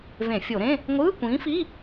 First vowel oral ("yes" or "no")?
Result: no